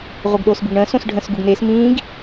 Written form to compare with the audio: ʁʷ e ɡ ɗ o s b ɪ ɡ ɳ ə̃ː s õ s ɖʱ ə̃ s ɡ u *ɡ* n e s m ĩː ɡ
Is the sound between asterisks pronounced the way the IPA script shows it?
yes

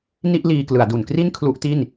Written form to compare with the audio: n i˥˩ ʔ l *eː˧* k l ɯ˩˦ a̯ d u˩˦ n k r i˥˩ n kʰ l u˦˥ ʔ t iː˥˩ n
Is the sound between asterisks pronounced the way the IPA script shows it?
no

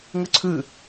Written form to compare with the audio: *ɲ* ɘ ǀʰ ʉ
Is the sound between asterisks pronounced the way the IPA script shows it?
no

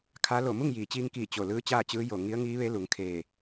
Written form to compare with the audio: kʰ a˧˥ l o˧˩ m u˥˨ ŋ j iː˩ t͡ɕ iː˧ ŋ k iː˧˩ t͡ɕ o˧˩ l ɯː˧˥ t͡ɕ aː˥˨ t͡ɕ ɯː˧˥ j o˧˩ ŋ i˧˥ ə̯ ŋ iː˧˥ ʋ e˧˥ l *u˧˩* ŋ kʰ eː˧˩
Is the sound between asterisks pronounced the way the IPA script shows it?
no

